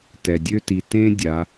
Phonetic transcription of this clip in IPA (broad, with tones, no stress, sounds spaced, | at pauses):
t ɛ˩ dʲ ø˥ t i˩˧ t ẽ˥ dʲ a˩˧